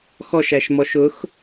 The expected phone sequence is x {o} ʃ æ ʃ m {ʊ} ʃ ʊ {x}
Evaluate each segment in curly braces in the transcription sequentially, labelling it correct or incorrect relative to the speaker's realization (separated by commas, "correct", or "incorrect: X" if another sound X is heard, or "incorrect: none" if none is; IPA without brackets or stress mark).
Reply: incorrect: ɔ, incorrect: ɔ, correct